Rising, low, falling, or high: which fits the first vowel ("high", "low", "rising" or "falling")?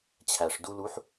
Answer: low